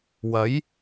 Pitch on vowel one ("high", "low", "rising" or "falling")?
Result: rising